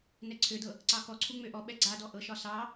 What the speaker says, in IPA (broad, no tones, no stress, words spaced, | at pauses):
nɛǀʰødɤ | ǀɑkɔǀʰu ŋ͡møʔɔɓɛ ɡ͡ǀadɔ ʔɤʃɒ sɑ